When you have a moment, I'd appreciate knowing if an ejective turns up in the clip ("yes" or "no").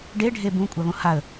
yes